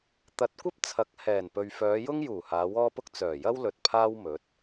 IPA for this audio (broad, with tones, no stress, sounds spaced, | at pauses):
t̪ ɐ˨˥ t̚ kʷ ɐ˥ p̚ t͡sʰ ɐ˨˥ k̚ h ɛː˨˩ n p ɵ˨ ɥ f œː˨˧ j ʊ˥ ŋ j uː˨˩ h aː˨˧ w ɔː˥ p ʊ˥ k̚ t͡s œː˨˩ j ɐ˥ w l ɵ˨ t̚ pʰ aː˥ w m ɵ˨˥ t̚